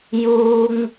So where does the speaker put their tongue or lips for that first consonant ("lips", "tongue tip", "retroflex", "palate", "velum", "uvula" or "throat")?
palate